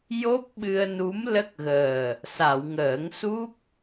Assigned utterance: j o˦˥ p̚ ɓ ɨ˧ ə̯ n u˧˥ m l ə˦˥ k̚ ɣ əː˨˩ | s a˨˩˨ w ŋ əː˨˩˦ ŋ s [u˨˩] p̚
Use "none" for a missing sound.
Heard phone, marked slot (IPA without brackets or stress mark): u˦˥